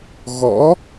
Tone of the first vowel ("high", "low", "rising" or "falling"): rising